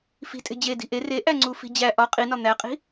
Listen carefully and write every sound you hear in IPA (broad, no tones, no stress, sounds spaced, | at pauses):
f i̤ tʼ e̤ d͡ʑ e d i̤ ʔ e r e ʔ æ ŋ͡ǀ u f i̤ d͡ʑ æ ʔ ɒ qʼ i n ɒ n̪ æ qʼ i̤